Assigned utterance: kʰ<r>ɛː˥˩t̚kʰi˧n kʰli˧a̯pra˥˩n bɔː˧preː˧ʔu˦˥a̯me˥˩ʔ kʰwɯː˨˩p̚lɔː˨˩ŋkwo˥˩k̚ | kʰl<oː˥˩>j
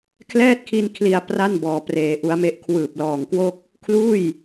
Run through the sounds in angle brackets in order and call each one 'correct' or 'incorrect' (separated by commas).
incorrect, incorrect